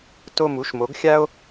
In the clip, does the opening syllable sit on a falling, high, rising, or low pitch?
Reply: falling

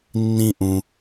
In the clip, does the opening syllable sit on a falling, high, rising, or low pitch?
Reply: high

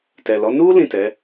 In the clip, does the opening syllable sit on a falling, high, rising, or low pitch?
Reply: low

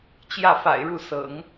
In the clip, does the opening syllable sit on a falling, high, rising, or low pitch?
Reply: falling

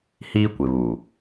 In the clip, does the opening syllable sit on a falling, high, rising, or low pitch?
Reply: high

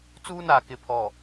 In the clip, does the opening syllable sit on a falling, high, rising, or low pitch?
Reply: high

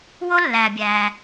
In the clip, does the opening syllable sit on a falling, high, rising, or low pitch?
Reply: high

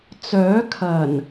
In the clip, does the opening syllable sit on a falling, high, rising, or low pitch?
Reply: rising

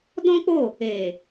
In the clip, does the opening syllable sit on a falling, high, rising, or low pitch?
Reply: high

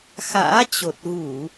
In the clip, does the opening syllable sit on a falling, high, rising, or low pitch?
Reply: rising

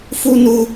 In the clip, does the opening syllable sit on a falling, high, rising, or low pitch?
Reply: high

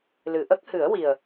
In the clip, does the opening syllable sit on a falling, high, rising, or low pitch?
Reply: low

